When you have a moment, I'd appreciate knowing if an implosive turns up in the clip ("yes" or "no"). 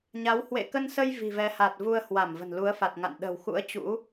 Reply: yes